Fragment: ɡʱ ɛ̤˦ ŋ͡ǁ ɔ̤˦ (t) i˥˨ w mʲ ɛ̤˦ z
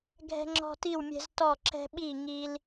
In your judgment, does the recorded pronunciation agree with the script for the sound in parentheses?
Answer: yes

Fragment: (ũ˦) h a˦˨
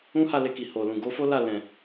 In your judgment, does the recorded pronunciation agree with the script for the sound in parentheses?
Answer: yes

